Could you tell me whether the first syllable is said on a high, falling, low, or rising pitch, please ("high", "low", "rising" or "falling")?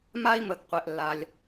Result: high